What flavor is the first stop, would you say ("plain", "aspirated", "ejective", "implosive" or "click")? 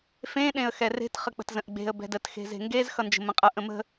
implosive